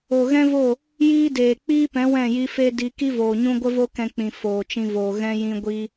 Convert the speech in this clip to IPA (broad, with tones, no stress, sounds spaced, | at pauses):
o˨ ɣ ɛ̃˦ v o˦˨ | j iː˦ d eː˨ k͡p iː˦ p ɛ̃˨˦ w ɛ̃˦˨ j i˦ f e˦ d i˧ k i˦ v oː˨ ɲ ũ˦ ɡʷ ə˦ v o˦ k ɛ̃˧ k͡p ĩ˨ f oː˨ t͡ʃ ĩ˧ v oː˨ ɣ ɛ̃˧ j ĩ˧ ɡʷ i˦